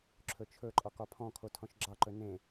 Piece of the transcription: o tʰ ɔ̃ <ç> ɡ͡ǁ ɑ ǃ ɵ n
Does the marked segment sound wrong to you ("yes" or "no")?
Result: yes